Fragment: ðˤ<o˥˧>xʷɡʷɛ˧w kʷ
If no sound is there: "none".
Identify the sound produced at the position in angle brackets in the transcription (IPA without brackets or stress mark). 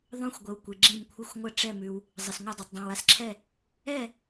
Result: õ˥˧